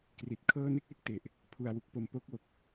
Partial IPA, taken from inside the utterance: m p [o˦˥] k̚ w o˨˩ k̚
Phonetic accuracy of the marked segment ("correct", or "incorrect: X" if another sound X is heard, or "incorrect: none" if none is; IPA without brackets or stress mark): correct